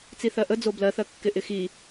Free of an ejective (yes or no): yes